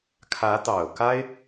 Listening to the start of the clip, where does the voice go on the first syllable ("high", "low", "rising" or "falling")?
rising